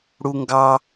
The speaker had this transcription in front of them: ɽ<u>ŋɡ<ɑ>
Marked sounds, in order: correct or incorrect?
correct, correct

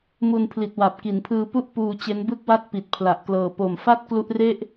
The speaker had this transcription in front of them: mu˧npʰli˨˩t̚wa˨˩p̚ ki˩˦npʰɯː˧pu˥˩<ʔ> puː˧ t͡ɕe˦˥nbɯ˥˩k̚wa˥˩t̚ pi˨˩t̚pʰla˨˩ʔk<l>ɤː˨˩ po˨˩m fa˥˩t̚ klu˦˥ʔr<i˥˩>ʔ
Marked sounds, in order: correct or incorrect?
correct, correct, incorrect: e˥˩

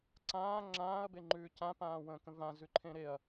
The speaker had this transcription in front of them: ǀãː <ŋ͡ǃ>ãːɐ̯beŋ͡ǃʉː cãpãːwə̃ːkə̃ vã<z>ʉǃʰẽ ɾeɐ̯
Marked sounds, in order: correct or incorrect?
incorrect: ŋ͡ǁ, correct

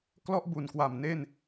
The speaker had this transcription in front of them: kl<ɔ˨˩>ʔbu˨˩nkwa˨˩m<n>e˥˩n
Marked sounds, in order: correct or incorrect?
incorrect: ɔ˥˩, correct

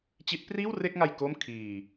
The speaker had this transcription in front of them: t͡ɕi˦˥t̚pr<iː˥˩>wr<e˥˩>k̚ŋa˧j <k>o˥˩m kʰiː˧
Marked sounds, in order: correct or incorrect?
correct, correct, correct

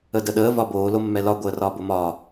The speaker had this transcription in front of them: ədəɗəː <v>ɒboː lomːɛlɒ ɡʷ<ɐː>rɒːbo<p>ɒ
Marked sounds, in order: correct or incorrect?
correct, incorrect: əː, incorrect: m

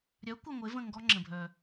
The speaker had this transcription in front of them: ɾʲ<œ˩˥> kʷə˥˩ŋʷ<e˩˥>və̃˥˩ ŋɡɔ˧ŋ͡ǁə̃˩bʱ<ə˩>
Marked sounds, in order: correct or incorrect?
correct, correct, incorrect: œ˩

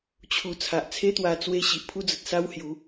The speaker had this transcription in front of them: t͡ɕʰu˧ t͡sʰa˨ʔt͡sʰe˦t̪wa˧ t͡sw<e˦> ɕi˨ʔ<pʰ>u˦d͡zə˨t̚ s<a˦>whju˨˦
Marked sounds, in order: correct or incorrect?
incorrect: e˧, correct, correct

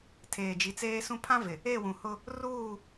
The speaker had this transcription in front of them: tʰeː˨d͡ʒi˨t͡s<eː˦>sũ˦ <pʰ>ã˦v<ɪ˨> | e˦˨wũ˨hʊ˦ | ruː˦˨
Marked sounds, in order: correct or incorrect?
correct, correct, correct

